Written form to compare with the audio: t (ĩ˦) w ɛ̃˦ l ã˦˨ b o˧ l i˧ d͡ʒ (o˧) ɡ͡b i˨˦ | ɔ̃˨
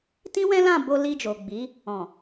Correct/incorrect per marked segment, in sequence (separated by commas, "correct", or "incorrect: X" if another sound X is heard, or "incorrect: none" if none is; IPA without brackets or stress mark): correct, incorrect: o˨